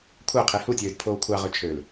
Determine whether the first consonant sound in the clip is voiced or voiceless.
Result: voiceless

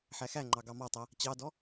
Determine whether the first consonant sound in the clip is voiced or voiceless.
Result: voiceless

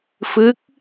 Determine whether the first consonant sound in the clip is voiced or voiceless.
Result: voiceless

